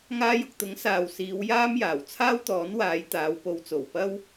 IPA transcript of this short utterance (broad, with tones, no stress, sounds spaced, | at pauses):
ŋ aː˧ j ʊ˨ k̚ t̪ ʊ˨˥ ŋ s aː˨ w s iː˨˧ w j aː˥ m j aː˨˩ w t͡sʰ aː˥ w t̪ ɔː˨˥ n w aː˨˧ j t̪ aː˨˧ w p o˨˧ w t͡s o˨˩ w p ɐ˥ w